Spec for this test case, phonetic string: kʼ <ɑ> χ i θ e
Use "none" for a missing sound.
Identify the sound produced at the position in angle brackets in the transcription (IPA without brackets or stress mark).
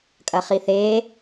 ɐ